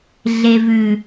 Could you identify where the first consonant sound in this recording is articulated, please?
alveolar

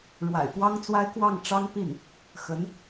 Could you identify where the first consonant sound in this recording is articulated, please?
retroflex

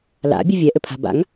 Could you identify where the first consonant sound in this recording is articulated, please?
alveolar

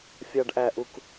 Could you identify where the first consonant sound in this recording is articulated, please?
labial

